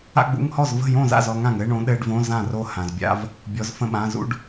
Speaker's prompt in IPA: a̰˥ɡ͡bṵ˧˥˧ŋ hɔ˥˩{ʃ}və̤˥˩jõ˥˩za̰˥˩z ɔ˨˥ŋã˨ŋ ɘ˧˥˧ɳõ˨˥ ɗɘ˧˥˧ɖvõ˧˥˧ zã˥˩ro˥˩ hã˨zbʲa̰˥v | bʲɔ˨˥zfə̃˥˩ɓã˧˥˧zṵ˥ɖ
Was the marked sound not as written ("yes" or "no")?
yes